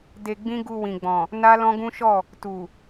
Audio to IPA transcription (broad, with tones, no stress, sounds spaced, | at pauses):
d e˧ ɡ͡b ĩ˦ ɡ u˧ w ĩ˨ ɡ͡b ɔ̃˨ | n a˦ l ɔ̃˦ ɡ ũ˦ ʃ ɔ˦˨ | t u˨